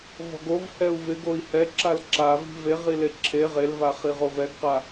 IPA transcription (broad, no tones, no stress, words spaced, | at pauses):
vɔ̤ɡovhɛu̯ vɪ ɡoi̯hɛǁal ǁavi̤ veʁile ǁʰe ʁelvaχi ʁovɛɡqa